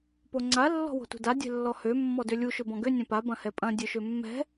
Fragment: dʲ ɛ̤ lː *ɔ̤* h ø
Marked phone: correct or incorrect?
incorrect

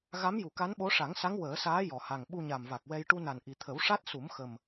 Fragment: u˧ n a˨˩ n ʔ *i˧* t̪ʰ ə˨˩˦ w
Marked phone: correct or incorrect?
incorrect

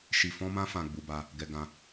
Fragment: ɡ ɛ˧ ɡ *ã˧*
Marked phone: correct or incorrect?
correct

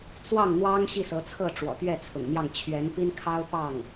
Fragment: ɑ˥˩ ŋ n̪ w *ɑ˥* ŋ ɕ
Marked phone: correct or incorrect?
correct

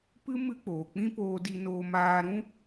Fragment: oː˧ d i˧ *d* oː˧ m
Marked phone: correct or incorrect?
incorrect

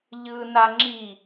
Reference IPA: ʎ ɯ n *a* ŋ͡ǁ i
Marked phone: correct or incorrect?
correct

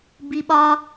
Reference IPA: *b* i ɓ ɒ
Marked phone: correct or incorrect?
correct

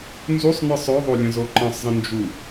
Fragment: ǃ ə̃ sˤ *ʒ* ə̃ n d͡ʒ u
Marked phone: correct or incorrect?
incorrect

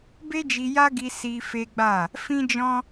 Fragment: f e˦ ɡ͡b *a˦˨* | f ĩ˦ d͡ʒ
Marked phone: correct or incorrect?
correct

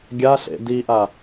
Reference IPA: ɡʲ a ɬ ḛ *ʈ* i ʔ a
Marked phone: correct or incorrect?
incorrect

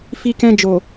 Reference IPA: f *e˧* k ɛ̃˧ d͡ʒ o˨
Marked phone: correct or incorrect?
incorrect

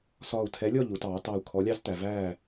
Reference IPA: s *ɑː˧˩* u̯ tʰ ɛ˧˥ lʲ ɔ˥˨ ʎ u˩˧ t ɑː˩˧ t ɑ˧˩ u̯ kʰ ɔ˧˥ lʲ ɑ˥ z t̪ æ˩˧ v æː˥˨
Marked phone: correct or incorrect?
incorrect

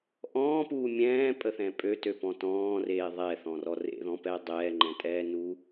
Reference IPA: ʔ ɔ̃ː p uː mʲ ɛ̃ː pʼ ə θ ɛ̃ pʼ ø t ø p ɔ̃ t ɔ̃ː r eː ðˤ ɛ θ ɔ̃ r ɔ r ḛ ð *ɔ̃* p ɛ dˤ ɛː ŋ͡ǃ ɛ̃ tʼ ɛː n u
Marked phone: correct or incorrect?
correct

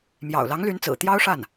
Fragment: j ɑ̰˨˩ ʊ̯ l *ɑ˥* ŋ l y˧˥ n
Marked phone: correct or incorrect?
incorrect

